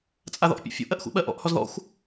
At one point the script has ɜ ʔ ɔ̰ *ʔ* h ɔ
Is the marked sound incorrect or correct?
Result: correct